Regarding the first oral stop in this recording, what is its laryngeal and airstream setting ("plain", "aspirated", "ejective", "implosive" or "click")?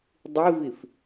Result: plain